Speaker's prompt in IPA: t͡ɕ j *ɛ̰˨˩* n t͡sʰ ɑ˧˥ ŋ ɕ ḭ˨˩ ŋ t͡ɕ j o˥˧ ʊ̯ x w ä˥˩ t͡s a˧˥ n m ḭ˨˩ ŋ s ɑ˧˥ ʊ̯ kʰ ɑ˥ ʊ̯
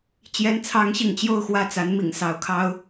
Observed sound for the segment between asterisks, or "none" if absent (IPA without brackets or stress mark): ɛ˧˥